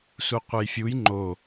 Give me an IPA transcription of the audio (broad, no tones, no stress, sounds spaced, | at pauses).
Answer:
s u qʷ e j fʲ u j ŋ͡ǃ o